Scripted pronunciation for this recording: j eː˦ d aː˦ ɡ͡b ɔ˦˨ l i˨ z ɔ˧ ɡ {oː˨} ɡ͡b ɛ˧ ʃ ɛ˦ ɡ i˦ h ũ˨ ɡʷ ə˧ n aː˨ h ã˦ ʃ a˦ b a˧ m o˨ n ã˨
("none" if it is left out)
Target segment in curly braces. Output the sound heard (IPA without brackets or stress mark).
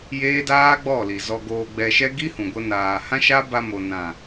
oː˧